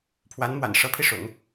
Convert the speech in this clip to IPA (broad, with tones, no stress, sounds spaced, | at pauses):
pʰ w a˧˥ n m w a̰˨˩ n ʂ ɤ˧˥ pʰ i˥˩ ʂ ʊ̰˨˩˦ ŋ